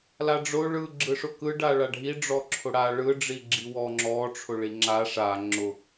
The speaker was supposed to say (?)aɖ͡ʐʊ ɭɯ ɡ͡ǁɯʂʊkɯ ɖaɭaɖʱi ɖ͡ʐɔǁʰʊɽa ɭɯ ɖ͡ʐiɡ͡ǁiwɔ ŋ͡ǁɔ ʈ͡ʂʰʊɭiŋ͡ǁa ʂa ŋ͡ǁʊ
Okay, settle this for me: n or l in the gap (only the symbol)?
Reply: l